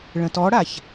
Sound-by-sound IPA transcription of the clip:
ɭ ə̃ t ɔ ɽ a ç

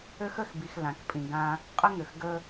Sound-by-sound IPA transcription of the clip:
ø˦ x ə˦˨ x b i˨ x l ã˨ k pʼ ĩ˨ ɡ ã˦ | qʼ ə˦ ŋ ʏ˨ x ɡ ə˦

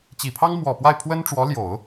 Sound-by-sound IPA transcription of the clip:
t͡ɕ i˨˩ pʰ ɑ˥ ŋ m w ɔ˨˩ p w a˥˩ ɪ̯ pʰ w ə˥ n ʈ͡ʂ w ɔ˧˥ l j o˨˩˦ ʊ̯

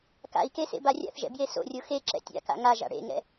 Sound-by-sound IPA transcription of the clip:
k a̰ i̯ k e s ḛ b a rʲ a̰ θ ʒ ɛ̰ b j e s o̰ rʲ o x e ǁ ɛ̰ tʲ a̰ k a̰ ŋ a ʒ a̰ ɽ ḛ ŋ ɛ̰

